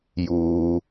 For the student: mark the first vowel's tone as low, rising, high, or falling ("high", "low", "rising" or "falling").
low